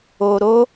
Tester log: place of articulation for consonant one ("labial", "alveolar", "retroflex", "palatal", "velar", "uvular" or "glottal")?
alveolar